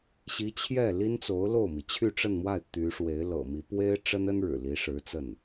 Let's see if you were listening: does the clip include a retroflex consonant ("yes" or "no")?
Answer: yes